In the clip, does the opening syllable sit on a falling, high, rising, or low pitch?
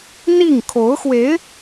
falling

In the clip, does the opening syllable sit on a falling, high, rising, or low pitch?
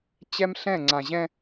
high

